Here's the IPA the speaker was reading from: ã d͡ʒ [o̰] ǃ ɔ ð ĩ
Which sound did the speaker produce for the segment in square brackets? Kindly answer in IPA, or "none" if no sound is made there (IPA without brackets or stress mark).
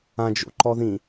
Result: o̰